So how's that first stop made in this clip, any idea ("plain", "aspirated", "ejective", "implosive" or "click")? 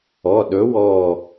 implosive